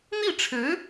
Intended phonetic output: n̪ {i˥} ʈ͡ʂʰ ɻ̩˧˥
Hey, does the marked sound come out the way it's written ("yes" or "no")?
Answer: no